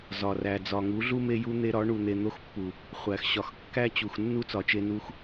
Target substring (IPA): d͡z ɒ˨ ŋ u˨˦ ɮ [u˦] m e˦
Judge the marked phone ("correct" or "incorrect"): correct